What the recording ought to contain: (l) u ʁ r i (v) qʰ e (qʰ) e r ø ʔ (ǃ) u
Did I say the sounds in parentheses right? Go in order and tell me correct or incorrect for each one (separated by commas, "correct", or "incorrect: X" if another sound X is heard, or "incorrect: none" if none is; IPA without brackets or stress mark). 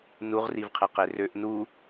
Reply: incorrect: n, correct, incorrect: q, incorrect: n